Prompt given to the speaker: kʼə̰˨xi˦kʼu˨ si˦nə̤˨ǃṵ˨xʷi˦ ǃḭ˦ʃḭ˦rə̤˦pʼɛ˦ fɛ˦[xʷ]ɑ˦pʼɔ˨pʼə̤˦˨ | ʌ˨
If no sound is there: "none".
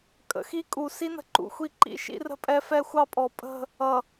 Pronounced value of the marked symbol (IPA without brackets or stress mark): xʷ